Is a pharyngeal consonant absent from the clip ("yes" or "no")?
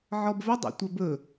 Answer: no